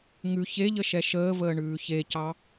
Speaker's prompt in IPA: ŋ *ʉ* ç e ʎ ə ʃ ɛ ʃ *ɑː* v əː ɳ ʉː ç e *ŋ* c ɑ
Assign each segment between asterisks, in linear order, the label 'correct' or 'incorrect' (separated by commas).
correct, incorrect, incorrect